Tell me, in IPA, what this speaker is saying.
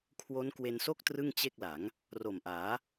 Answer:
kʰwo˦˥n kwe˧nso˥˩k̚ trɯ˥˩ŋt͡ɕe˥˩k̚la˩˦ŋ | ro˨˩mʔaː˩˦

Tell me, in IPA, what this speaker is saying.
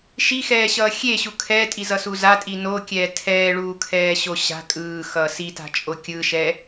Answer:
ʃixɛːɕʌː xʲeɕu kʰɛːtʼizʌsu zatʼi nokʲɛː tʰɛːɭuːkʰɛːɕo ɕa̤ kʼɯːxʌː sita̤t͡ʃʼo kʲɯʃɛ

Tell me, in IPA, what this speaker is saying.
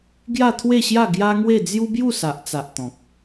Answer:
ɡja˥˧t̪ʰwe˥˧ɕja˥˧ ɡja˦ŋwe˥˧ d͡zju˦bju˥˧sa˨ʔt͡sa˨ʔ t̪ɔ̃˨k̚

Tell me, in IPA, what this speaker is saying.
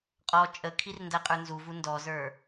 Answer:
qʼɔ t͡ʃʼəkʰir ndæqʼə˞nzuvu ndɔzə˞

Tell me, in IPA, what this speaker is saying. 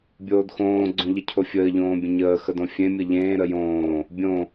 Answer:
bʲoːdxõː ɡ͡ǀõʎəcʰofʲəː ʎõːbʲə̃ɲəː xədõfʲẽ mʲəʎẽː ɾəjõː | bʲõ

